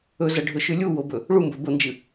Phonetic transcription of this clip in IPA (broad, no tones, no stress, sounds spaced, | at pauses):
ɵ z ɐ ɖʱ ɵ ʃ ʉ lʲ u w o b ɵ | ɭ u m b ɵ b o n d͡ʒ ɨ